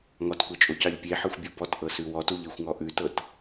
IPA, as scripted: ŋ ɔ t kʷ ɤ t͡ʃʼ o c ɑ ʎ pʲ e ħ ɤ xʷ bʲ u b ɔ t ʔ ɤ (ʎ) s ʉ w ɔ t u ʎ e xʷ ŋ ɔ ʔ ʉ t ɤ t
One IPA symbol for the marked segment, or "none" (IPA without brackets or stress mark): none